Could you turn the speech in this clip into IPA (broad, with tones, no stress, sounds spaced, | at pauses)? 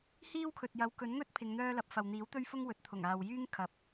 h iː˥ w kʰ ɵ˨ t̚ j ɐ˨˥ w k ɵ˨˥ n ŋ ɵ˥ t̚ pʰ ɪ˨˧ ŋ n̪ œː˥ l ɐ˨˥ p̚ f ɐ˨ w n̪ iː˨˥ w t̪ ɵ˥ ɥ f ʊ˥ ŋ w ɵ˨˥ t̚ t̪ʰ ʊ˨˩ ŋ aː˨ w j yː˥ ŋ kʰ ɐ˨ p̚